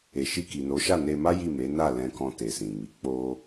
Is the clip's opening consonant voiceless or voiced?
voiceless